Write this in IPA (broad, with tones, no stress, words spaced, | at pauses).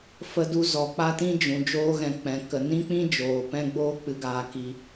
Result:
fə˧du˧ zɔ˨k͡pa˦tĩ˦d͡ʒũ˨ d͡ʒoː˧ɣɛ̃˨ k͡pɛ̃˨ kə˨nĩ˦k͡pĩ˦ d͡ʒoː˨ pɛ̃˦ɡ͡boː˦ k͡pɨ˨ɡaː˨ki˨